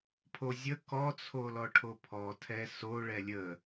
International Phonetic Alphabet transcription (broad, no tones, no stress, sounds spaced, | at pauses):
pʰ o zʲ ə k ɔ t͡sʰ o l ɔ ʈʰ o pʰ ɔ tʰ ɛ s o ɭ ɛ lʲ ə